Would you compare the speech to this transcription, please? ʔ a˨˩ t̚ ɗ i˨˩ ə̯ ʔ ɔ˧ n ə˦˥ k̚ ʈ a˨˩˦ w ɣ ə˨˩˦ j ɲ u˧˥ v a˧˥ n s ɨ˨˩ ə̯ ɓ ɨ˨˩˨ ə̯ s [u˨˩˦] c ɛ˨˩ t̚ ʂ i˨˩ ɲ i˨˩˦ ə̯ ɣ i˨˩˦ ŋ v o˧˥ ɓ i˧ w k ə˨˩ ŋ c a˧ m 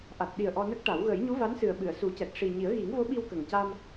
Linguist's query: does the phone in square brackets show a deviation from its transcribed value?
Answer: no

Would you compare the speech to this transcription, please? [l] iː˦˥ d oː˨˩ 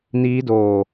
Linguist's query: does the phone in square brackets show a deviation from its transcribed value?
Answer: yes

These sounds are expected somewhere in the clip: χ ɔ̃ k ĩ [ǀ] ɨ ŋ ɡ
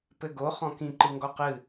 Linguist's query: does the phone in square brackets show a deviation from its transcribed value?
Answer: yes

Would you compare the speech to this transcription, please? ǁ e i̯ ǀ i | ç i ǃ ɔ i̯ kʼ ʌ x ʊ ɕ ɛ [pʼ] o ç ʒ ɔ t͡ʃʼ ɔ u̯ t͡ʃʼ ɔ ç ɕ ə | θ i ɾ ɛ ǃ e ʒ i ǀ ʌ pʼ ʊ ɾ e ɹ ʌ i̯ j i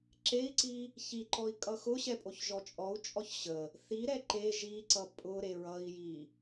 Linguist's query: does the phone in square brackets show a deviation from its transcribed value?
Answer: no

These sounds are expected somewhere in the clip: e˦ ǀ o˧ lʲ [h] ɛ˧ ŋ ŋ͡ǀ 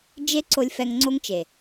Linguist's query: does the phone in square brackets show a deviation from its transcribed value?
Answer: yes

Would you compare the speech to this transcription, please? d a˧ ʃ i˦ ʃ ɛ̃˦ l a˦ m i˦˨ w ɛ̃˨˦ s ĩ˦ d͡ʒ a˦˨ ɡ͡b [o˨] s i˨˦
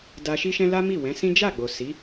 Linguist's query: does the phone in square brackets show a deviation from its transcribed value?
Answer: no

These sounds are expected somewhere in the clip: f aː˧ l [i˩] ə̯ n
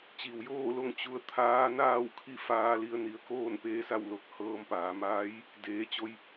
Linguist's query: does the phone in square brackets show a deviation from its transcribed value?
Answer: yes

